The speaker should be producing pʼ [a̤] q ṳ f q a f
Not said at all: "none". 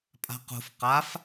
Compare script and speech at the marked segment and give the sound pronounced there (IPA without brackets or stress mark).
a̤